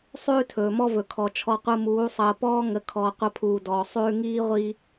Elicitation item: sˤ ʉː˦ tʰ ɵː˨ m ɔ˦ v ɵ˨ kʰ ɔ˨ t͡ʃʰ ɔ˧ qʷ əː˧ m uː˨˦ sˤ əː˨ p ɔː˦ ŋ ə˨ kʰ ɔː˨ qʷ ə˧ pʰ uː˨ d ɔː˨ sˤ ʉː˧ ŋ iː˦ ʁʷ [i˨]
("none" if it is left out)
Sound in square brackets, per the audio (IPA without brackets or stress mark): i˧